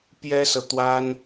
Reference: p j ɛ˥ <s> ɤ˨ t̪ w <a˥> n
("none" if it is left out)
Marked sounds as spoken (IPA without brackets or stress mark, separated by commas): s, a˥